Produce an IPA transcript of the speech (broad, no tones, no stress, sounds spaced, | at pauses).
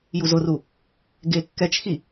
j u z ʊ r u | ɡ e kː ɛ t͡ʃ x i